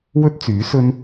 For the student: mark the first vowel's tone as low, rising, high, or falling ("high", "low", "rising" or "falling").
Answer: high